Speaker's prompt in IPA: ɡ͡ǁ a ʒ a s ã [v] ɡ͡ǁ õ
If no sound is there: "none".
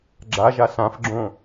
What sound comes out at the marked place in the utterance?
f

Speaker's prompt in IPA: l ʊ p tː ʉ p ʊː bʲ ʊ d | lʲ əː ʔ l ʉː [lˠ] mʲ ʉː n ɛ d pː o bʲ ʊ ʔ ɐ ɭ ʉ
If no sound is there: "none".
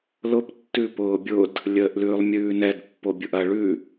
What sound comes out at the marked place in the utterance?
lˠ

